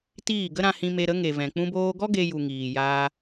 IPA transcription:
t iː˦˨ ɡ ə˦ ɾ ã˧ h ĩ˧ m e˧ ɾ ə˨˦ ŋ e˨ v ɛ̃˨ k͡p ũ˧ b oː˧ ɡ ɔ˦ ɡ e˧ j u˨ ŋ iː˨ j aː˧

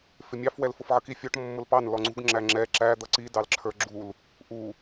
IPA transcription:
f ɪ mʲ ɑ f w ɛ l f ʊ f ʕ ə k i fʲ ɔ ʈ mː ʊ l p ɑ n l ɔ ŋ͡ǀ ṳ ɡ ŋ͡ǁ æ ŋ͡ǁ ɛ ǁ æ d̪ ʌ ǀ i d ɑ l ǁʰ ə˞ ɡ͡ǁ u l | ʔ u

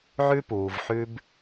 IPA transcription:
ʕ ʉ˦ p uː˨ v ħ ʉ˦ b

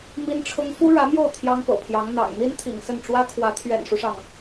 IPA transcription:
m i˥ n ʈ͡ʂʰ ʊ˥ ŋ f u˥ ɻ ä˧˥ m j o˥˩ ʊ̯ t̪ʰ j ɑ˥ ŋ p ɤ̰˨˩ pʰ j ɑ˧˥ ŋ n̪ ɑ̰˨˩ ŋ n̪ i˥ n t̪ʰ ḭ˨˩ ŋ s ə˥˩ n ʈ͡ʂ w ä˥ kʰ w ä˧˥ t̪ʰ ɥ ɛ̰˨˩ n ʂ u˦ ʂ ɑ˩ ŋ

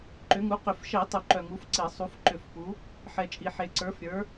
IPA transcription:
ǃ ʏ˨˦ ŋ u˨˦ q ʏ˨˩˦ f ʃ ɛ˨˩˦ tˤ u˨ ǃ œ˨ ŋ u˨˦ f ǀ e˨˩˦ sˤ u˨˦ f ǃ ʏ˨˩˦ f p u˨˦ | ħ ɛ˨ t͡ʃʼ i˨ ħ e˨ ǀ ə˞˨˦ f ɾʲ ə˞˨˦

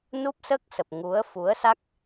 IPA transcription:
n u˦˥ p̚ s əː˦˥ k̚ s ə˨˩ p̚ ŋ u˨˦ ə̯ f u˨˦ ə̯ s a˦˥ k̚

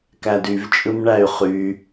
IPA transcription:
k æ d y v t͡ʃʼ ɯ m ɳ æ y̯ χ y

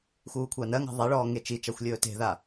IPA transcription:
x uː kʷʰ a n ɜ ŋ a̤ ðˤ ɛ ɭ ɔː ŋ e t͡ʃ i t͡ʃ a xʷ lʲ ɵː t e̤ ð a

